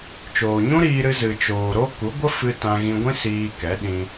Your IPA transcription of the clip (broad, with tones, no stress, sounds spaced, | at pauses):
t͡ʃ oː˨ ɲ ũ˦ ɾ iː˧ ɾ ɨ˧ z ɨ˨ t͡ʃ oː˨ ɾ o˦ k u˨˦ ɡʷ ə˦ f ɨ˧ t ã˧ ɣ ĩ˧ ɡʷ ĩ˦ s iː˧ k ɛ˨˦ ɗ ĩ˧